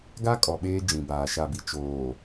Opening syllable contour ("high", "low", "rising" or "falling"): high